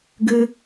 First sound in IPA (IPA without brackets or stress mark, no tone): ɡ